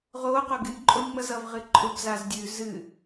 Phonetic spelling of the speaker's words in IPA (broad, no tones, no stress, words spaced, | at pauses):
ʁoː qoɡɨnʲ ǃʼonʲŋ͡mʌzʌv ʁɨǃʼʊb zazdʲʉ zɨ